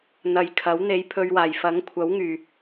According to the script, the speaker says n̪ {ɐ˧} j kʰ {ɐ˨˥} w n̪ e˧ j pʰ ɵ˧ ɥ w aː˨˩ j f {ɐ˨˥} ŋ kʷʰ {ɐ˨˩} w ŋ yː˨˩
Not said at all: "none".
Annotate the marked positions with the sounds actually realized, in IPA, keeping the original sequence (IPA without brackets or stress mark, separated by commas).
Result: ɐ˧, ɐ˨˥, ɐ˨˥, ɐ˨˥